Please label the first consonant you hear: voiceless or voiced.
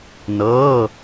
voiced